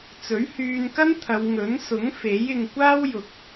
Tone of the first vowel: rising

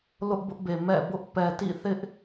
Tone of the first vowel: high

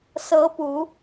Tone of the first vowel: rising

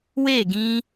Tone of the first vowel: falling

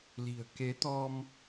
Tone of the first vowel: low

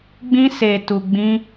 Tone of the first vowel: high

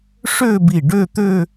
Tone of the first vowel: falling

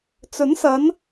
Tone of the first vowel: rising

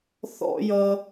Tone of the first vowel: high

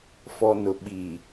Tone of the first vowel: low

